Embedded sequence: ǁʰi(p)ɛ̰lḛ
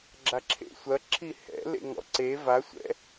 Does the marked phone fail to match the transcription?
yes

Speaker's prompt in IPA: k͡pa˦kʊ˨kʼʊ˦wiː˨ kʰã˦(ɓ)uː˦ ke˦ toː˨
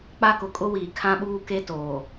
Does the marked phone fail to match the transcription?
no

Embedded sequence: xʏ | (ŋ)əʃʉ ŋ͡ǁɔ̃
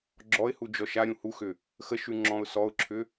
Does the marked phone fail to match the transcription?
yes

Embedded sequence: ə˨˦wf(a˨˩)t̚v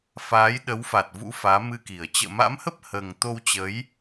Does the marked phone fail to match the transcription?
no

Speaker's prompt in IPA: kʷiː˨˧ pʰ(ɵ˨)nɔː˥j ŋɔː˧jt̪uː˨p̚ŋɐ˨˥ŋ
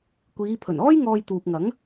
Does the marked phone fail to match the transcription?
yes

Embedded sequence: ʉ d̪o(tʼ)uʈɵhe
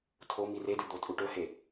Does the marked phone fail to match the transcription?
no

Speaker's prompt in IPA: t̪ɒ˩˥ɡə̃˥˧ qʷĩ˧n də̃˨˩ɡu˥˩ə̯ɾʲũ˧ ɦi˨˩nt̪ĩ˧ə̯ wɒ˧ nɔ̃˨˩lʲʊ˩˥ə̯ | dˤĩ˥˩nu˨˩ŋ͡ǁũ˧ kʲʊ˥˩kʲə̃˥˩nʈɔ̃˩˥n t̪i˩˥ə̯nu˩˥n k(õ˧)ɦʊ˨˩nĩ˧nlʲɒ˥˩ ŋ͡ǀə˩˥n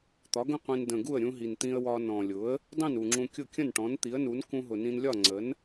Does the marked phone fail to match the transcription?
yes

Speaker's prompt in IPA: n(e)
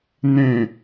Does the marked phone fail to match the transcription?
yes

